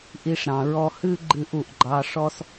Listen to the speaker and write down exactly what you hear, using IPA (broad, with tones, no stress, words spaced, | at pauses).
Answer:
ʔi˧ʂɾɑ̃˩ ɹɔ˧hɨ˥ɡ͡ǃɨ˧ʔ u˩ʔɡ͡ǃɑ˧ ʂɔ˥s